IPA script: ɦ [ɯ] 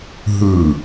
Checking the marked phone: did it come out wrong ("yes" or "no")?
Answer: no